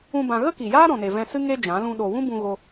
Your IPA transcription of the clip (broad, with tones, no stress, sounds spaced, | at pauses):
ũ˧ b ã˧ ɣ ə˦ k i˨ j aː˦ ɾ ɔ̃˨ n e˨ v ɛ̃˧ s ɨ˦ ŋ e˦ d͡ʒ ã˨˦ l ũ˦ ɗ o˧ w ũ˦ b ũ˧ ɣ o˧